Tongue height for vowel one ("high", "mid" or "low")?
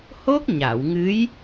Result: mid